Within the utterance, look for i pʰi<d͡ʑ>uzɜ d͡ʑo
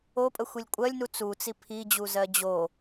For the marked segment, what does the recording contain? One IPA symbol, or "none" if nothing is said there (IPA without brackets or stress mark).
d͡ʑ